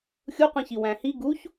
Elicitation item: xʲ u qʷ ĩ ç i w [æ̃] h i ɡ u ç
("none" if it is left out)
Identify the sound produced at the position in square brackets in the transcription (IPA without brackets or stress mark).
æ̃